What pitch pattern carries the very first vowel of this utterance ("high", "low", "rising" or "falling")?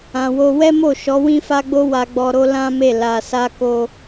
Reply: low